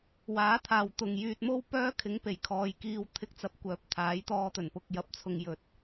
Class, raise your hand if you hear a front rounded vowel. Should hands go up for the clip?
yes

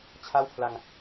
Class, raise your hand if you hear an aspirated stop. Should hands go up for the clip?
yes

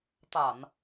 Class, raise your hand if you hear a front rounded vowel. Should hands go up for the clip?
no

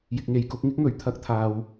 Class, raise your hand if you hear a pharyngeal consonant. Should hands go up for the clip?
no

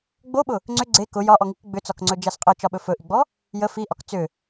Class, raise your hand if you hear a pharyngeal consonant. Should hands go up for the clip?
no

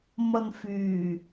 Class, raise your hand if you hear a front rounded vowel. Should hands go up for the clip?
yes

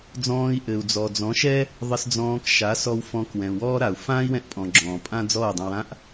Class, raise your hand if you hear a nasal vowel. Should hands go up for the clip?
yes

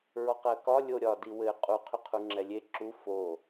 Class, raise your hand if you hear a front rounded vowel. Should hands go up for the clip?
yes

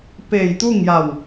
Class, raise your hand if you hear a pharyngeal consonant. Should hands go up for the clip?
no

